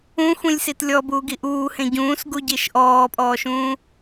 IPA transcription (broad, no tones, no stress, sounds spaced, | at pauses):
ũ xʷ ĩ lʲ s i t lʲ ɔ b uː ɡ i ʔ uː h ẽ ɟ ũː s ɡ u ɟ i ʃ ʔ ɔː pʼ ɔː ʃ ũː